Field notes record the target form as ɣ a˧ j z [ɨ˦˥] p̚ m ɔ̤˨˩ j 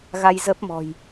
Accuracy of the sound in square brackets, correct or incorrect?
incorrect